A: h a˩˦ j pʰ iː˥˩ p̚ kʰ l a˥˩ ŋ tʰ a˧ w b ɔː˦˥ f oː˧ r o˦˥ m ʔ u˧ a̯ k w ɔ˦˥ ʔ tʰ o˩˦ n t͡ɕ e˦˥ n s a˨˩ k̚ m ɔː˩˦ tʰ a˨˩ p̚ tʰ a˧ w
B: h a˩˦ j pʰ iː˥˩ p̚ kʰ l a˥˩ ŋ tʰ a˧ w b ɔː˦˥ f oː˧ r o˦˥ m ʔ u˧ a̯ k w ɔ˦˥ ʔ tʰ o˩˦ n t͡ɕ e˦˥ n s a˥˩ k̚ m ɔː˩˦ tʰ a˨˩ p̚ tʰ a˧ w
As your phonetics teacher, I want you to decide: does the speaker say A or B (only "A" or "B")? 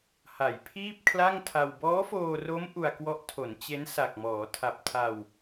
A